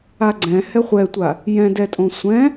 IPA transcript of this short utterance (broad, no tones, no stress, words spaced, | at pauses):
aɡ͡ǀɛ̃ hɛχʷɛtʷa | jɛ̃dɛtʼõ sʷɛ̃